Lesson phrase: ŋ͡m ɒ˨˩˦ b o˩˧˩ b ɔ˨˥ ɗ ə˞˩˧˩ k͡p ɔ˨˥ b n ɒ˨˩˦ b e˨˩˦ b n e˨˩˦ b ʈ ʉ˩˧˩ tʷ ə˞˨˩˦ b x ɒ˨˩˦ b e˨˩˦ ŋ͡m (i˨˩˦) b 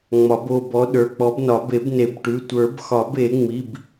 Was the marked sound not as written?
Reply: yes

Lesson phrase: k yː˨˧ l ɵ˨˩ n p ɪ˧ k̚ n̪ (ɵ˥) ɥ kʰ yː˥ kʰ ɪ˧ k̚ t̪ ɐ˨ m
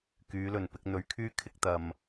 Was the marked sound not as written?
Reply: yes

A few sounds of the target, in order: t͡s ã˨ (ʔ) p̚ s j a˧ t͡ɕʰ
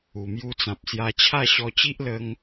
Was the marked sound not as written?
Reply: yes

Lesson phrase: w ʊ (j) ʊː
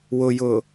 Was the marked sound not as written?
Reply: no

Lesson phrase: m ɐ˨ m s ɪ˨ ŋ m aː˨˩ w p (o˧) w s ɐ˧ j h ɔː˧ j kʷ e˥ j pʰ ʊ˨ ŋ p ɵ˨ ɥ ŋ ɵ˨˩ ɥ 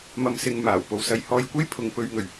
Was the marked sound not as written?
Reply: yes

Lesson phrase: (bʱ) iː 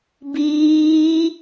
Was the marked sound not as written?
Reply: yes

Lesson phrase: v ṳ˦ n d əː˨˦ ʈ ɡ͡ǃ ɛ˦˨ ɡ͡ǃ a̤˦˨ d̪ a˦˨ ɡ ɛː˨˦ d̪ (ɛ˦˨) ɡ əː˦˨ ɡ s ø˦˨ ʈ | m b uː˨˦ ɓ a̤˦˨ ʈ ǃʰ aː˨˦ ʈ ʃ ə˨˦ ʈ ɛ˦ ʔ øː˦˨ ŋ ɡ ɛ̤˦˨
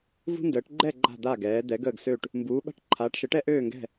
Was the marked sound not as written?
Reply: yes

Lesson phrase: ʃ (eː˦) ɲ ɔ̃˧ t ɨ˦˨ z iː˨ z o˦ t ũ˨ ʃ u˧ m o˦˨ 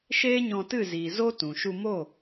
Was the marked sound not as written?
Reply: no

